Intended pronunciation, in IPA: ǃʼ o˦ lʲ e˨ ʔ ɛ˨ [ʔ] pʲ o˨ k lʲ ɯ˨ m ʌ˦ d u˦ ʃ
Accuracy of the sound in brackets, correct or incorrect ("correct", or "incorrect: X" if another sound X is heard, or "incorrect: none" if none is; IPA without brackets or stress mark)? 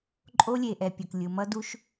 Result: incorrect: none